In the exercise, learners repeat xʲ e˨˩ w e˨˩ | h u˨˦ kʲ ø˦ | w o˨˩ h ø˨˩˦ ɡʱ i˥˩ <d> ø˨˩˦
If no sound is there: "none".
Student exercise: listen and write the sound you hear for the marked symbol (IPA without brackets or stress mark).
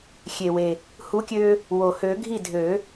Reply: dʱ